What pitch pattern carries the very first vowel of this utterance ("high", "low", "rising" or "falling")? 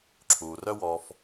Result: low